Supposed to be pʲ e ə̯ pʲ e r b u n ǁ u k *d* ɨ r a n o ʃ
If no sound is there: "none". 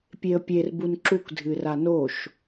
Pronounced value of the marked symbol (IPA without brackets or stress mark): dʱ